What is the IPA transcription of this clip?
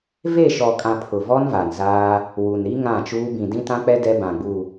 v e˦˨ ʃ ɔ˨ kʼ ã˨ pʰ ʊ˨ v ɔ˦ n v a˨ n z aː˦ | w u˨ n ɾ i˦ ŋ ã˦˨ t͡ʃ uː˦ b ĩ˨ d ĩ˦ t ã˦ k͡p ɛ˦ d ɛ˦ b ã˨ ɡ͡b u˨

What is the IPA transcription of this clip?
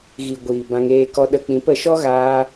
ɣ i˨ ɡʷ iː˨ b ã˧ ŋ eː˧ k ɔ˧ ɗ ə˧ k͡p ĩ˨˦ p ə˨˦ ʃ ɔ˦ ɣ aː˧

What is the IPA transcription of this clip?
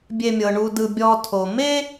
bʲ e˨ mʲ ɤ˩ ɳ u˨ d ɯ˨ bʲ ɔ˨ tʰ o˩ m e˦

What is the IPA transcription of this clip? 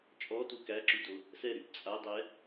t͡ʃʼ ɔ t u k æ ǁ y d o | s ɛ ɾ y p t͡sʼ a dˤ ɛ

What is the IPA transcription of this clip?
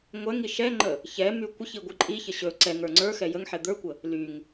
ŋʷ ɛ ŋ i ʃ ɛ ŋ͡ǃ ə | ç ɛ m y kʷ ə ç i ɡʷ i ǃʼ i ç ə ɕ ɵ ǀ ɛ ŋ ə˞ ŋ͡ǀ ə˞ x ɛ j ə ŋ ħ ɛ d̪ ə˞ kʷ ə | l y ŋ

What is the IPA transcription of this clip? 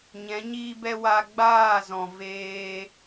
ɲ ɛ̃˨˦ ɲ iː˦ b ɛ˦ w a˧ ɡ͡b aː˦˨ z ɔ̃˨ v eː˧

